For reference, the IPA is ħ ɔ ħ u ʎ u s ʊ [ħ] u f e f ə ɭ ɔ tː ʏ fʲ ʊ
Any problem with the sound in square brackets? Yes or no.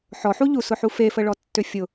no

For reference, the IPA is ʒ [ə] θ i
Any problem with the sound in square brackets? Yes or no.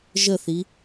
no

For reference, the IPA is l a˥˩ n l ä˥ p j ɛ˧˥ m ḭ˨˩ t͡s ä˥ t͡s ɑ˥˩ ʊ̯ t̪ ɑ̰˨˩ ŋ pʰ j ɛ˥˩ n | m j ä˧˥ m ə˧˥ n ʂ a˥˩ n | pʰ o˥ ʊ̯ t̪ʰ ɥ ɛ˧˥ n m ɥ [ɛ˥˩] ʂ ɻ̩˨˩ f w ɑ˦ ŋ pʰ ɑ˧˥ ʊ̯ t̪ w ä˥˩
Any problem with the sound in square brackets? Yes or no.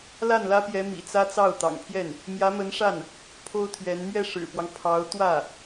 no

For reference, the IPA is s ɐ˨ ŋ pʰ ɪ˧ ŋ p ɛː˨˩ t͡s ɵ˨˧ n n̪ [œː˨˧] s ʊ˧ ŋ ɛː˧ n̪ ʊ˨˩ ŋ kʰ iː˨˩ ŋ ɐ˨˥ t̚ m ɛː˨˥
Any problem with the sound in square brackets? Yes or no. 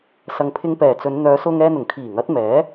no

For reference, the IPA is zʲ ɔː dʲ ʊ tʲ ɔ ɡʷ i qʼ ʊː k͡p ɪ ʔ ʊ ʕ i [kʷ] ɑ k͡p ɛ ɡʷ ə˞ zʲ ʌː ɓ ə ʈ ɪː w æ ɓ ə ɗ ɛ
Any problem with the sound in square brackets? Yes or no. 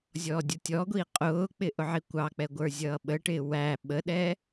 no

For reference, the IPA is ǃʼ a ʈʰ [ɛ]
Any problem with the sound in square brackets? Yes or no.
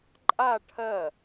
yes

